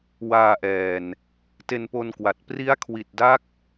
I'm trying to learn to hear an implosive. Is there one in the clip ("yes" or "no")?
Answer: no